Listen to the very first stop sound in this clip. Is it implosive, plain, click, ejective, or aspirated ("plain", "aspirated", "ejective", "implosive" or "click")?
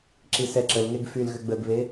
click